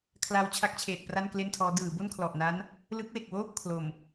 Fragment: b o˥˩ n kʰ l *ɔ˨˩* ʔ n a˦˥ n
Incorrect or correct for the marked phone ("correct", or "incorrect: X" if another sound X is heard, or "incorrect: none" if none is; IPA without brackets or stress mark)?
correct